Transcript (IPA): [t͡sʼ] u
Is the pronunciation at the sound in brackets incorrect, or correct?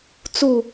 incorrect